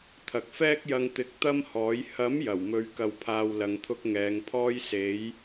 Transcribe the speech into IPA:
t̪ʰ ɐ˨ k̚ f ɛː˥ k̚ j ɐ˧ ŋ t̪ ɪ˨˥ k̚ t̪ ɐ˥ m h ɔː˨˥ j h ɐ˨˥ m j ɐ˨˩ w m ɵ˨˧ ɥ k ɐ˧ w pʰ aː˧ w l ɐ˧ ŋ t̪ʰ ʊ˥ k̚ ŋ ɛː˨˧ ŋ pʰ ɔː˥ j s e˨˥ j

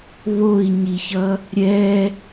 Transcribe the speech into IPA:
β o i̯ ɲ i ç ʌ | ɾʲ ɛ

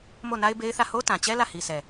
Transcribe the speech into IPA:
m o˦˨ n a˦ ɪ̯ b e˦ ɪ̯ θ ä˦˨ h o˦ t ã˨ t͡ɕ ɛ˦ l ä˦˨ h i˨ s ɛ˨

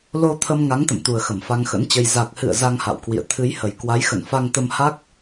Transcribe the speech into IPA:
l o˧ t̪ʰ ə˧ m ŋ a˨˦ ŋ t̪ ə̰˧˨ m t̪ u˨˩ ə̯ x ə˧˩ m f a˧ ŋ x ə̰˧˥ n t͡ɕ ə˧ j z a˨˩ k̚ h ɨ̰˧˨ ə̯ z a˧ ŋ h a̰˧˨ w k w ḭ˧˨ ə̯ t̪ʰ ɨ˨˦ j h ə˨˩ j k w a˨˦ j x ə̰˧˨ n f a˧ ŋ t̪ ə˧ m h a˦˥ k̚

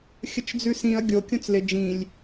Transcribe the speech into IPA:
xʲ ə t͡ʃ d͡z ʉ s ĩ ɐ̯ ɡʲ o kʲ õ t͡s l ɪ d͡ʒ ĩ lʲ

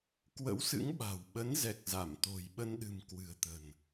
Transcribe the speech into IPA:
k w ə̰˧˥ w s ɨ̰˧˥ ŋ ɓ a̤˨˩ w ɓ ə˨˦ n z ɛ˨˩ k̚ z a˧˩ m t̪ o̤˨˩ j ɓ ə˧ n ɗ ɨ̤˨˩ m k w ɨ̤˨˩ ə̯ t̪ ə̤˨˩ n

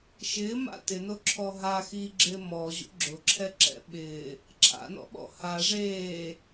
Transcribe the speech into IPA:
ʃ ɪː m a̰ t ɪ n o ǁʰ ɔ ɦ a x iː ɡ͡ǁ ɪː m ɔ ʑ ṵ ɡ͡ǁ ʊ ǁʰ ɛ ǁ ɛ̰ ɓ ɪː | ǁʰ a̰ n ɔ̰ ɓ ɔ̰ h a ʐ eː

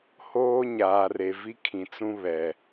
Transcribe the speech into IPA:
h oː˦ ɲ aː˨ r e˨ v i˦ kʰ ĩ˨ t͡s ũ˦ β ɛ˨

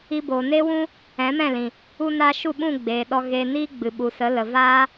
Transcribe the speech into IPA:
i˧ b oː˨ n e˦ w ũ˦ | ɛ̃˨˦ m ɛ̃˦˨ l ĩ˨ | u˧ n aː˧ ʃ u˦˨ ɓ ũ˦˨ ɡ͡b eː˨ ɗ ɔ˧ ɣ e˧ n iː˦ ɡ͡b ɨ˨ ɓ u˨ s ə˨˦ l ə˨ v aː˦

